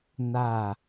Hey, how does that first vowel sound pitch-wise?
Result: falling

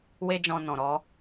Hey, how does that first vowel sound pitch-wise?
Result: high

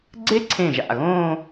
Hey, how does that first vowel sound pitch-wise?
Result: high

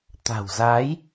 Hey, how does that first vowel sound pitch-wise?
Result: low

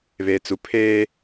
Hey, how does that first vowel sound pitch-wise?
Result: low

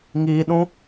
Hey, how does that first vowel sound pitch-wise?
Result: low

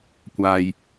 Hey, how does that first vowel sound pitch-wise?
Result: low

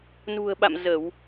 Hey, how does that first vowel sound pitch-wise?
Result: low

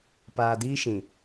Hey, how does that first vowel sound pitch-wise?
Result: low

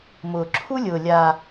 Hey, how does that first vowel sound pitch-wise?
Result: low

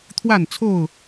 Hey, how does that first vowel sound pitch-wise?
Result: falling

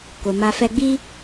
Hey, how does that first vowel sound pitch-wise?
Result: low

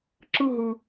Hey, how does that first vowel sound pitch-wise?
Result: falling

